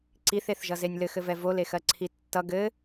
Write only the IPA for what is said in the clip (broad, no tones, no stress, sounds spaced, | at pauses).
ǀ i θ e θ ʒ ʌ z e nʲ l ɘ x ɘ v ɛ v o l e x ɜ ǀʰ i tː ʌ ɡ ɘ